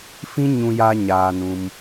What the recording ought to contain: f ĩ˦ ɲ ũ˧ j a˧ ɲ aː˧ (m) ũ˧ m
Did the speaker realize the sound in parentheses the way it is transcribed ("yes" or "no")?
no